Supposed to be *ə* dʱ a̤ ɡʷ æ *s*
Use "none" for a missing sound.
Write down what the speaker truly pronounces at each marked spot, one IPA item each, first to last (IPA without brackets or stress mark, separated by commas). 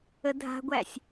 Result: ə, sʲ